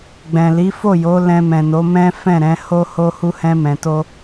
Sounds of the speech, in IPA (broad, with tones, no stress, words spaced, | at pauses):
ɡ͡bɛ̃˨li˨˦fo˦˨jo˨˦ lɛ̃˧mɛ̃˨no˨˦mɛ̃˦ fɛ̃˦˨ɾɛ̃˨˦ho˦ ho˦hu˦ hɛ̃˧mɛ̃˨to˧